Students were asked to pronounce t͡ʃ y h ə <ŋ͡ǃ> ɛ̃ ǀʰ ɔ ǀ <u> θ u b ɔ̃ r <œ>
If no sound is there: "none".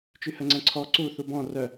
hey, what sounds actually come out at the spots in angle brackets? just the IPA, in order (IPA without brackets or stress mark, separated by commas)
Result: ŋ͡ǀ, u, œ